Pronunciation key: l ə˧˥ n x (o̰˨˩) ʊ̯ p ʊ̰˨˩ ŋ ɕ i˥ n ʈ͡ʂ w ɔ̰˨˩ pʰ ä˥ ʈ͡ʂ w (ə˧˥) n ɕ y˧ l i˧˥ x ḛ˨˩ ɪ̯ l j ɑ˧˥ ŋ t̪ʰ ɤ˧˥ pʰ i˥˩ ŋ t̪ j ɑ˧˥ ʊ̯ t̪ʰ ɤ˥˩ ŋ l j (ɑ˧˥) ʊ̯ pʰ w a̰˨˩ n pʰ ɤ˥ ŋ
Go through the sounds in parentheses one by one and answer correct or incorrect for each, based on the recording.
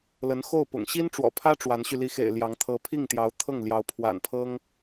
incorrect: o˥˩, incorrect: a˧˥, correct

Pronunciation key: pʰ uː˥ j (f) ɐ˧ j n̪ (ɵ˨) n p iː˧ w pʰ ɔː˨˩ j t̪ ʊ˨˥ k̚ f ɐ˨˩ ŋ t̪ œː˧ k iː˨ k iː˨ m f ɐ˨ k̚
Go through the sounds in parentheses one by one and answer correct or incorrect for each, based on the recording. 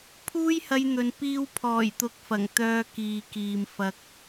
incorrect: h, correct

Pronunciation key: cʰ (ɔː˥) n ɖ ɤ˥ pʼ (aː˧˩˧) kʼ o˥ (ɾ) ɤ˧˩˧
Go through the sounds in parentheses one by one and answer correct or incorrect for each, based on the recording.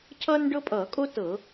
incorrect: ʌː˥, incorrect: ʌː˧˩˧, incorrect: t

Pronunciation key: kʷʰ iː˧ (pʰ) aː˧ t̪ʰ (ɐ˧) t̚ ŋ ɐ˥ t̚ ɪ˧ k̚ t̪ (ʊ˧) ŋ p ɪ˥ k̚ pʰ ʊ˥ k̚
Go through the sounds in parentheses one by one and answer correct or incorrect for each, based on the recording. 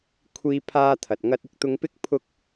correct, incorrect: ɐ˨, correct

